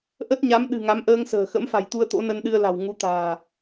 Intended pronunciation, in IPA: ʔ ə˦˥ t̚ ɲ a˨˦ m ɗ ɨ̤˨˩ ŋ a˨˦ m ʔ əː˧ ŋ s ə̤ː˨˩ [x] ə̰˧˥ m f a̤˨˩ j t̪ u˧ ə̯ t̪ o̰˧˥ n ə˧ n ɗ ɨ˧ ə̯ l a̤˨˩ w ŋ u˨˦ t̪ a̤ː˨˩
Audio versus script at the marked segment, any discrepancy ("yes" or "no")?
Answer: no